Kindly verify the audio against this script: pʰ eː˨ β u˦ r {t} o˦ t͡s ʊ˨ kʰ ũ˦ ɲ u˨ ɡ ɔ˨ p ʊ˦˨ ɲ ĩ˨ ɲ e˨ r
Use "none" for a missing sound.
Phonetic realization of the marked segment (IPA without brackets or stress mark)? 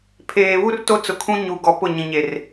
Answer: t